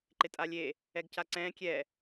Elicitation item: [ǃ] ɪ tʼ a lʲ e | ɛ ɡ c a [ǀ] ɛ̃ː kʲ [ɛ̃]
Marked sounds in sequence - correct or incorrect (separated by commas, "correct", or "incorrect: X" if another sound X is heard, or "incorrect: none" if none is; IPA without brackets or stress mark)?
correct, correct, incorrect: ɛ